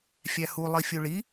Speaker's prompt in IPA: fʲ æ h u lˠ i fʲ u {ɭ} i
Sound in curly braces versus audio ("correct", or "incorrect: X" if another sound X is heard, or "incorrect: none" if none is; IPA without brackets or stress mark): correct